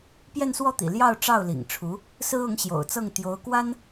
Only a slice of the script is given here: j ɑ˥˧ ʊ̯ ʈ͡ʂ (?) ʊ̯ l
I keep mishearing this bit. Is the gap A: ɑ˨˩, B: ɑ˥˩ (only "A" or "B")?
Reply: B